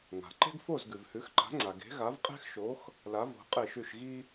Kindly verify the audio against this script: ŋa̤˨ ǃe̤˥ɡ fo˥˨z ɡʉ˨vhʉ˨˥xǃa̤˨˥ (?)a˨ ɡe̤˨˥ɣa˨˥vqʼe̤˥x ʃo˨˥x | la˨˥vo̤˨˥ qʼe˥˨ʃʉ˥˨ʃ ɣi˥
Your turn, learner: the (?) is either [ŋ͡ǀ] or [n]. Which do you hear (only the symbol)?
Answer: ŋ͡ǀ